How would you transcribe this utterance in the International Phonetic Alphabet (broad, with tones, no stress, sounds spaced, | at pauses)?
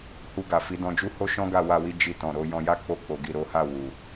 h u˧ ɡ a˨ f i˨˦ d ɔ̃˧ d͡ʒ u˦ h o˦ ʃ ɔ̃˦ ɡ a˦˨ w a˧ w i˧ d͡ʒ i˧ t ɔ̃˨ ɾ o˨˦ j ɔ̃˧ j a˦ k͡p o˧ k͡p o˨ ɡ i˨ ɾ o˨˦ h a˦˨ w u˨